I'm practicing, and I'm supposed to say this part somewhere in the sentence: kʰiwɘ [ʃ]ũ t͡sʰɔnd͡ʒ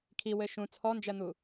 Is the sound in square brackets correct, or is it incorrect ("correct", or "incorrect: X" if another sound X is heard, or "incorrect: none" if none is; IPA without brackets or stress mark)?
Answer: correct